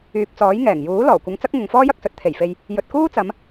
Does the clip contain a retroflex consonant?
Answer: no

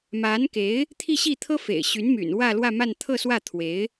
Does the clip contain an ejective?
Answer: no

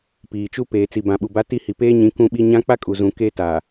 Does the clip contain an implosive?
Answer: yes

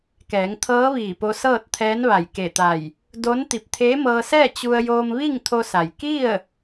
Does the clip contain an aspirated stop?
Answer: yes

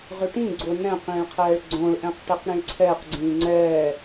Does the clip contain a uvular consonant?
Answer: yes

